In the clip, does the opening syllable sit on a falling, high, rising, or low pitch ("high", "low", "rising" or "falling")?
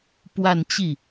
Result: falling